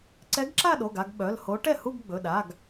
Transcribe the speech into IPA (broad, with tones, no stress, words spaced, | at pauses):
ǀɛ˧˥ɡǁa˥˧ɗo˩˧˩ɡa˥˧ɡ ɓœ˩˧˩lho˧˥ ʈɛ˥˩hu˥˧ɡ ɡ͡bɵ˩˧˩ ɗa˩˧˩ɡ